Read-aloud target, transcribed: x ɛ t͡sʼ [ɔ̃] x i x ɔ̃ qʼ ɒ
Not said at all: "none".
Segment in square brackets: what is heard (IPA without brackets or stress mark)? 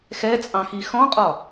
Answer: ɑ̃